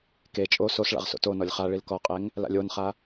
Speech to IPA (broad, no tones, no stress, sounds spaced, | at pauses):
k e t͡ʃʼ o s o s ɭ a̰ ʁ s o̰ t o n ɔ lʲ χ a ɭ i l k ɔ qʼ e ŋ | l a̰ lʲ o n χ a